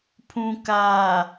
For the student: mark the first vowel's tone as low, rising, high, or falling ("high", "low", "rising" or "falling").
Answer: low